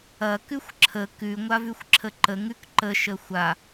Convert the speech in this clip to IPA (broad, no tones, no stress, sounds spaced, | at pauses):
ɐ k ʉ xʷ ǁʰ ə k ʉ ŋʷ a v ʉ xʷ ǁʰ ə ǃ ə ŋ ʉ k ǃ ə ʃ ə xʷ a